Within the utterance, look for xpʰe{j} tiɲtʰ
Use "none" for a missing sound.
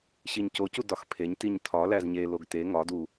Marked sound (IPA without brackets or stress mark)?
ɲ